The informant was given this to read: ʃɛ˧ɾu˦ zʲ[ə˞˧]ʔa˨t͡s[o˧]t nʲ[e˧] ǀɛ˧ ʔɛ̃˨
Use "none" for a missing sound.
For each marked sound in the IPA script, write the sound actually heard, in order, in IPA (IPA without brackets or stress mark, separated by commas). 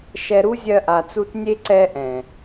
ɜ˧, u˧, e˧